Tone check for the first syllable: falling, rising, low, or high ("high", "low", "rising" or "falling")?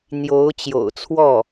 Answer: rising